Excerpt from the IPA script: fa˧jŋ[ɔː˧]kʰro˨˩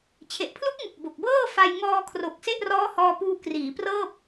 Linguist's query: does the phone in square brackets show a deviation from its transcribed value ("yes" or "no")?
no